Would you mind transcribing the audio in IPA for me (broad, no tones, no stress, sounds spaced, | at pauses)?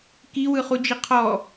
k i w ɯ χ u d͡ʒ i qʰ ɔ